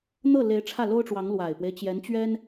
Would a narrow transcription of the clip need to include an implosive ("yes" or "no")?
no